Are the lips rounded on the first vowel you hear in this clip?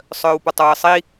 yes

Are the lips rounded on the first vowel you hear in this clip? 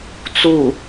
yes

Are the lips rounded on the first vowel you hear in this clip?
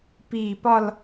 no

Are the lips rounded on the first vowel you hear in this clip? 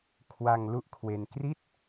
no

